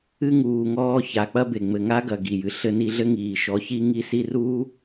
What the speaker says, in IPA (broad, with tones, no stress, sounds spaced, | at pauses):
ɨ˥ ŋ uː˨ ŋ ɔː˦ ç a˨ k͡p ɐ˥ b e˩ ŋ͡m ɘ˨ ŋ a˥ ɡ ɐ˨ ɡ i˩ j ɨ˨ ɬ ɘ˦ n i˦ ɮ ɘ˥ ŋ iː˨ ʃ ɔ˨ ç i˦ ŋ i˦ s i˦ r uː˥